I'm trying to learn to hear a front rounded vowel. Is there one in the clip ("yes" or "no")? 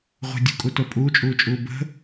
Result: no